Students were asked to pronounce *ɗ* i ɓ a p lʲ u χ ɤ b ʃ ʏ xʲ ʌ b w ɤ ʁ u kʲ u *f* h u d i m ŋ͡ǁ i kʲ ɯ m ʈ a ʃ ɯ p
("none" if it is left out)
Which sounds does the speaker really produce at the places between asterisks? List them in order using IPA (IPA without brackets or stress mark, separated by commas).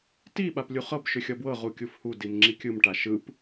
t, f